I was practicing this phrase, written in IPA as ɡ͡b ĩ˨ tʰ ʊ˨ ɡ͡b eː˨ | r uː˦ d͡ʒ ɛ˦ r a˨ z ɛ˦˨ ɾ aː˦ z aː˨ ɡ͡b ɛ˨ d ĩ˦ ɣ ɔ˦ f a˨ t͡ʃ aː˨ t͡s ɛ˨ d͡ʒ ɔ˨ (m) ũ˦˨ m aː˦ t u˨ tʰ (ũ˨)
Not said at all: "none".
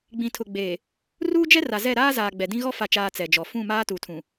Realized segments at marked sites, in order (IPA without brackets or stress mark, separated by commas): f, ũ˨